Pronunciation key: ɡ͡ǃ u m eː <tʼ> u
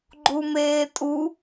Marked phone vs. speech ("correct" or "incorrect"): correct